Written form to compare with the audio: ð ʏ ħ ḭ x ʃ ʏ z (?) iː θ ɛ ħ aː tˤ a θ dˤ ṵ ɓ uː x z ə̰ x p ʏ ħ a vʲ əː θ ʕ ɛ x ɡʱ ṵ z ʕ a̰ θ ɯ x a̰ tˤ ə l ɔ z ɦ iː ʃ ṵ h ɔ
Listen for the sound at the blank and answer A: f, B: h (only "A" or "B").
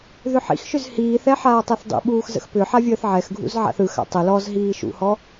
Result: B